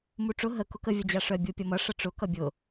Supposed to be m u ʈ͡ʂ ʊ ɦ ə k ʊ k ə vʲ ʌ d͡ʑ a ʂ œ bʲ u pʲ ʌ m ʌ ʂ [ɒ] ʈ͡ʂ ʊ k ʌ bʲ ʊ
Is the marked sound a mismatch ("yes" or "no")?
yes